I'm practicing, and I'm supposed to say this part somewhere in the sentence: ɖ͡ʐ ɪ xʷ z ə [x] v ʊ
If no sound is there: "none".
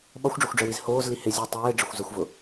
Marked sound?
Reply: xʷ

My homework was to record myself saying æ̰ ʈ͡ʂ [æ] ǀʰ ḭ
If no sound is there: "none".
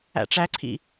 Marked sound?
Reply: æ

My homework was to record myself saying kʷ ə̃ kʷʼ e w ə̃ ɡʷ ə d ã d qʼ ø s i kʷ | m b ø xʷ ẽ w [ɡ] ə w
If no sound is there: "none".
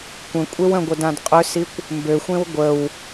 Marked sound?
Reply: ɡʷ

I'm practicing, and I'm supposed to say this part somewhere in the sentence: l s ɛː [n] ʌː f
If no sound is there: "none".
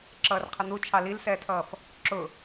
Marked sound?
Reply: tʰ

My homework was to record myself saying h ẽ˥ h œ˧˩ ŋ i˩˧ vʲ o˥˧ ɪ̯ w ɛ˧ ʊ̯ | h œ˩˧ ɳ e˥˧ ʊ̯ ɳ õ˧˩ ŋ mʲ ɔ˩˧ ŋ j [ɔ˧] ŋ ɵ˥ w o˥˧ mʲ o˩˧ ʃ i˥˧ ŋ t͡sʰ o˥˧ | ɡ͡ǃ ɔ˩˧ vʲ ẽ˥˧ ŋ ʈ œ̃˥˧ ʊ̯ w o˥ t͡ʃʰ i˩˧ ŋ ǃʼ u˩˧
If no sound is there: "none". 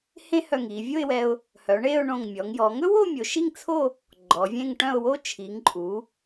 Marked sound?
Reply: ɔ˩˧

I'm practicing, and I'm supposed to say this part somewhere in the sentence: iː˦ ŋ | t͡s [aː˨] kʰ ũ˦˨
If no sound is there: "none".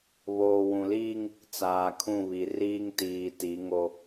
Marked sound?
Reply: aː˨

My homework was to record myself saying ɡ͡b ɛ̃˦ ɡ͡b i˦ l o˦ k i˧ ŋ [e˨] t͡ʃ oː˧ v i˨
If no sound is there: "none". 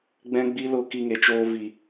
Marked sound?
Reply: e˨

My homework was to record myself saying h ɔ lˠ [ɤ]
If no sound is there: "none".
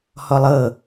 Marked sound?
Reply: ɤ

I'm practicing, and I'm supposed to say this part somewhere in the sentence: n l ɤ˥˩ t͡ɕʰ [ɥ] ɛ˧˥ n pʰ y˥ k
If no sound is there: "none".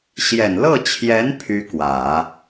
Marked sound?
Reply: j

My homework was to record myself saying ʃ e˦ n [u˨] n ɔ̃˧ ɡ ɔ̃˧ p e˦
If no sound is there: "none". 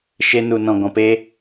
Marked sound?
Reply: u˧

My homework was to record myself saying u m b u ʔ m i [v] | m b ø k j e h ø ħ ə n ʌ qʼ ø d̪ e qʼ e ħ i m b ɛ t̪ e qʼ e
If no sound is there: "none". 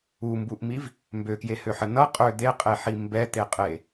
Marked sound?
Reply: v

